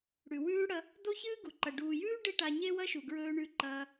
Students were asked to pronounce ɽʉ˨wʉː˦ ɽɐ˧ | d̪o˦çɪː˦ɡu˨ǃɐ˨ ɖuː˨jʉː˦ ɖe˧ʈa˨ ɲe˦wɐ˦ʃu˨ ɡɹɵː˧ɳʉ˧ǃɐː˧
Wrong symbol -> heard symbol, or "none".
ɪː˦ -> ɨː˦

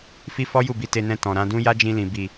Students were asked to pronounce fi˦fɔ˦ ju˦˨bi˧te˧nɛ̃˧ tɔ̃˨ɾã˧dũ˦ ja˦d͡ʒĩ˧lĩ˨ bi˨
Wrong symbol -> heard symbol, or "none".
none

